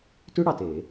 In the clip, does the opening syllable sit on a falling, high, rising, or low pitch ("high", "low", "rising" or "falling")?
high